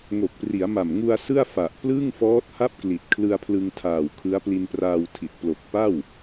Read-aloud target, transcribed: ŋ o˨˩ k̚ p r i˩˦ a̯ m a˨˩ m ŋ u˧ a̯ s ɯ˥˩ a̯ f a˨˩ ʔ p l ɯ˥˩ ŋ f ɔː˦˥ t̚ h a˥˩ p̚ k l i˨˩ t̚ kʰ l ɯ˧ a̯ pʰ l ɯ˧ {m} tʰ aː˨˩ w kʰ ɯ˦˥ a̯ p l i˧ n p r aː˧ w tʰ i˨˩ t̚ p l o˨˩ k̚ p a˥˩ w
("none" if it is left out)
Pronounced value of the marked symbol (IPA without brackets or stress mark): ŋ